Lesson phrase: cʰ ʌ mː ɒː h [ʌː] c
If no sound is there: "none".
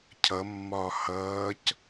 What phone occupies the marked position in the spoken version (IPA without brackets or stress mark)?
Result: ʌː